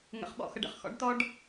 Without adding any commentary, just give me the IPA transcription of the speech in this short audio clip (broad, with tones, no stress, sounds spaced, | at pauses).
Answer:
ŋ ə̰˦ χ ɓ ɔ̰˦ x ə˦ ɖ ə̰˨ χ x ɔ̰˦ ɖ t ɔ˦ ɖ